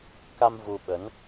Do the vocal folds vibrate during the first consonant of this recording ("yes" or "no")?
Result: no